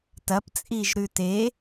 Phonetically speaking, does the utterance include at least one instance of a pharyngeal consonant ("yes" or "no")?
no